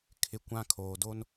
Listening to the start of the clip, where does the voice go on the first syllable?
high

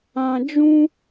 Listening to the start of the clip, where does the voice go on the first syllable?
low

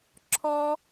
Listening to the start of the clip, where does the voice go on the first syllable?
high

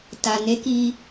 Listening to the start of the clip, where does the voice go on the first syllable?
low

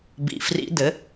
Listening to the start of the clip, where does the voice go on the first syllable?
low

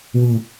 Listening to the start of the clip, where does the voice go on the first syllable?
low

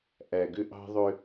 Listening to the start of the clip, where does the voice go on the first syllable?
low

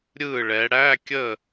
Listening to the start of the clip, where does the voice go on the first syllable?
falling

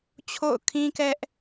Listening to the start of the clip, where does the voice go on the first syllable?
falling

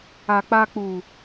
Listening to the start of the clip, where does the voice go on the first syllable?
low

